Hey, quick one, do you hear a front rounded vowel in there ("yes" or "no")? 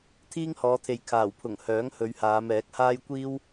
yes